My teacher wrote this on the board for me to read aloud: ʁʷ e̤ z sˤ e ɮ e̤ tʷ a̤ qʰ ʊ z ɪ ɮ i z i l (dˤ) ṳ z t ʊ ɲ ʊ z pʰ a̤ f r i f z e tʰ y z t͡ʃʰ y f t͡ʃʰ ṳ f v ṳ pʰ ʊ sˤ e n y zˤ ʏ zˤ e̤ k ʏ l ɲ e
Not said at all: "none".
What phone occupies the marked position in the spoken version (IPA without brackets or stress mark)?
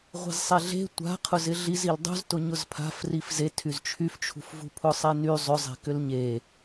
dˤ